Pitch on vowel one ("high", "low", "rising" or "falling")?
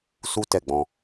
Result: high